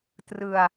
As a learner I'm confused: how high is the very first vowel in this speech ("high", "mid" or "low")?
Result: high